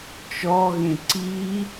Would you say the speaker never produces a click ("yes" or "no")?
no